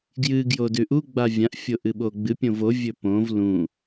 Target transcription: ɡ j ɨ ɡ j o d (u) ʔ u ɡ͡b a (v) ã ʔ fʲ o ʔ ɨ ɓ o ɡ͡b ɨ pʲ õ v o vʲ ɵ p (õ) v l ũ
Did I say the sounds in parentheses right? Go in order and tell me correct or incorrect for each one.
incorrect: ʉ, incorrect: vʲ, correct

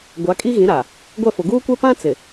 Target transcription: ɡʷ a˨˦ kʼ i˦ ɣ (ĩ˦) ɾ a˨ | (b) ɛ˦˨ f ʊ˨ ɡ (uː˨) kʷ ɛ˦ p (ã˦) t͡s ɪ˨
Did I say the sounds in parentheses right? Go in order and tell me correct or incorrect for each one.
incorrect: ĩ˨˦, incorrect: ɡʷ, incorrect: uː˦, correct

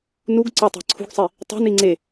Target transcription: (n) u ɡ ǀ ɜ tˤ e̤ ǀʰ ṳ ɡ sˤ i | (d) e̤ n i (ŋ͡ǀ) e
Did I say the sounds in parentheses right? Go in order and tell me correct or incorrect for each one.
correct, incorrect: tˤ, correct

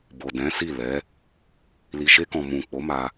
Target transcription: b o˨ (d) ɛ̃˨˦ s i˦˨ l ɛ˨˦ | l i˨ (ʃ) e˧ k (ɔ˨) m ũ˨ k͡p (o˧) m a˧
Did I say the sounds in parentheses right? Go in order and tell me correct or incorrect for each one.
correct, correct, incorrect: ɔ̃˨, incorrect: o˨˦

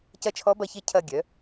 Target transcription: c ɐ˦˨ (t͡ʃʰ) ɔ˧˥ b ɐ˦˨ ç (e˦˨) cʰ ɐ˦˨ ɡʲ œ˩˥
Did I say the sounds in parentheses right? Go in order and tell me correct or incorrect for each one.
correct, correct

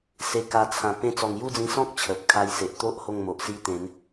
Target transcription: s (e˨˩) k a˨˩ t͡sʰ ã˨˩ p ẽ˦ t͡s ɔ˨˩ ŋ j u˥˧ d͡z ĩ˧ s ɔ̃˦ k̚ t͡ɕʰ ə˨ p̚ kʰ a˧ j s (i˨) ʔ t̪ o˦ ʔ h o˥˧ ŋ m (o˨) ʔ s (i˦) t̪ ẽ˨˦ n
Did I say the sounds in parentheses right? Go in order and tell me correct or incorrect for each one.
correct, incorrect: e˨, correct, correct

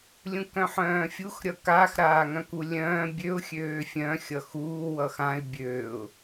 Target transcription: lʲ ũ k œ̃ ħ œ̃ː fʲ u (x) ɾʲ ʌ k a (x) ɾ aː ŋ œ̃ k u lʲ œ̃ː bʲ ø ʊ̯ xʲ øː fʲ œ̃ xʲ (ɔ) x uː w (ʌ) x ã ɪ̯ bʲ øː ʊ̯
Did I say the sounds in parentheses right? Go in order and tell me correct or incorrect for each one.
correct, correct, incorrect: ʌ, correct

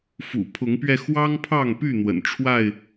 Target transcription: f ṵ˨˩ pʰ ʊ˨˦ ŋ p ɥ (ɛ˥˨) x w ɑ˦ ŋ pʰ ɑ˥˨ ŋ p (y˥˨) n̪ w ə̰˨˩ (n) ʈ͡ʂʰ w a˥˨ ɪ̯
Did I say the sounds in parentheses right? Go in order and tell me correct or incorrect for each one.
incorrect: ɛ˧, correct, correct

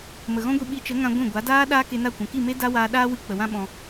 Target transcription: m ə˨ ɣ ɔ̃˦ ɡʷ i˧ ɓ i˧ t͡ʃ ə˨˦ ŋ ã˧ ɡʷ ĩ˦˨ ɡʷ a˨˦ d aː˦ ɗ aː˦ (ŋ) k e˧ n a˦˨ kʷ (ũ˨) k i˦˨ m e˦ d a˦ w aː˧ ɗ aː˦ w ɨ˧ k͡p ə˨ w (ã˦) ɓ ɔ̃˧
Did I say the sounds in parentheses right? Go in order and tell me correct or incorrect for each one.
incorrect: none, correct, correct

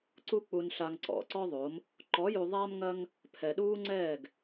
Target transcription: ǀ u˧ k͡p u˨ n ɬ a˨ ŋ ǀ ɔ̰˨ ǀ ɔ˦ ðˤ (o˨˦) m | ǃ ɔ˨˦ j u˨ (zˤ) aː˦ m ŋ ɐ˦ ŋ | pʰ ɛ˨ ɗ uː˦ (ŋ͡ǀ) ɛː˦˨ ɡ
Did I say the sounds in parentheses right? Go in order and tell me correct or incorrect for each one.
correct, incorrect: ðˤ, correct

